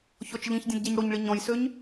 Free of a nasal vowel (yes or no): no